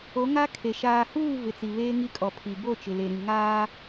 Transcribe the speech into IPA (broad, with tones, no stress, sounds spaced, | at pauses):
o˨˦ ŋ a˦ kʰ e˨ ʃ aː˨ h uː˦˨ v ɪ˨ t͡s i˨ β eː˦ ŋ i˦ kʼ ɔ˨ pʰ i˨ b o˦˨ t͡ʃ ɪ˨ l e˨ ɾ ĩ˨ ŋ aː˦